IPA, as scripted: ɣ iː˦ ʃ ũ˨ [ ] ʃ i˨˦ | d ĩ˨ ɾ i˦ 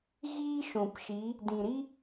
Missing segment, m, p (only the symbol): p